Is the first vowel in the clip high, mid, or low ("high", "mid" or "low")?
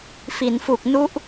high